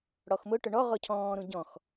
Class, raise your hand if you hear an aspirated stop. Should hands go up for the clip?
yes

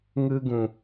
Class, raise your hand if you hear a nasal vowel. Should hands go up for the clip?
yes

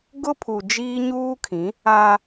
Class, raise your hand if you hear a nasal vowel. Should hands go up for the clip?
yes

